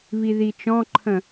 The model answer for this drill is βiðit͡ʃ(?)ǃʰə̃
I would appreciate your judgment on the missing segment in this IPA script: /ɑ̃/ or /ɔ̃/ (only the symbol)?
ɔ̃